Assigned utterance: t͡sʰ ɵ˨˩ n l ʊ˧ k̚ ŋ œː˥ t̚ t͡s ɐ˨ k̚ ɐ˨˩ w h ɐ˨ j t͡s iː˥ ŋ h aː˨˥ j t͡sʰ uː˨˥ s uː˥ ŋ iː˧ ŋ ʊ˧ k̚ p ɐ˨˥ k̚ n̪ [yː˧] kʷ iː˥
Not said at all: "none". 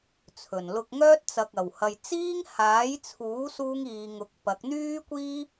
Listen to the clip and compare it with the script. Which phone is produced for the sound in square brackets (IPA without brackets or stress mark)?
yː˥